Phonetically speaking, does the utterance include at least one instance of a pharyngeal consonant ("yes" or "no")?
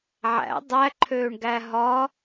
yes